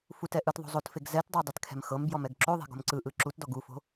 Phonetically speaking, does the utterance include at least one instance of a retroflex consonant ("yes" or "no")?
no